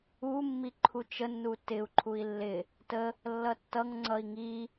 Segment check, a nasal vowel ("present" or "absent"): absent